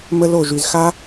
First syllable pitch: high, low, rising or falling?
high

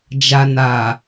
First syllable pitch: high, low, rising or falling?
low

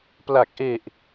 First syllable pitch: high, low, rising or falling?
low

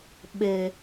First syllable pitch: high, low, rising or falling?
low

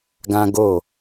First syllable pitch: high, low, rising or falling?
high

